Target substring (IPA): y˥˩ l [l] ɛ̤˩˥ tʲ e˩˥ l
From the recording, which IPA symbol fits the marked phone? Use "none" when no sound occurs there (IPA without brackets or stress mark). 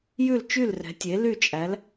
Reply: r